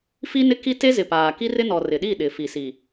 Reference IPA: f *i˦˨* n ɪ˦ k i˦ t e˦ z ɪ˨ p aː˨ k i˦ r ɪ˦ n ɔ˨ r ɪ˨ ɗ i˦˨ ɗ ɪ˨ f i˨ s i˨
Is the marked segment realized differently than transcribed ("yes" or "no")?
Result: yes